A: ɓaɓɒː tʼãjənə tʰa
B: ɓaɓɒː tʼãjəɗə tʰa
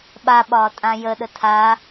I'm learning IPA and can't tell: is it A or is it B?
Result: B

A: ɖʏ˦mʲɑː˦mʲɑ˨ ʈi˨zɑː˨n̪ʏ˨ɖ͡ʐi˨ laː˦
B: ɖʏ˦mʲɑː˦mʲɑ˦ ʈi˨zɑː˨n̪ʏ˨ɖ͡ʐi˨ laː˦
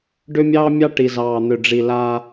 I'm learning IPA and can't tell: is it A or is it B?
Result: B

